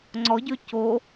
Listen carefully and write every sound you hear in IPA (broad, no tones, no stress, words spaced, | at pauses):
ŋ͡ǀɔɟø co